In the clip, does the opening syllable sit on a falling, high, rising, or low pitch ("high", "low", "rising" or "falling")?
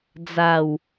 low